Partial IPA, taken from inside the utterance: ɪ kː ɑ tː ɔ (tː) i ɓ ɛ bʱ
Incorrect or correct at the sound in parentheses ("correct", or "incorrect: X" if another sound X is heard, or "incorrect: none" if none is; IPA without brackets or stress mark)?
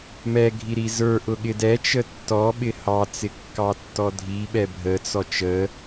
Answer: incorrect: dʱ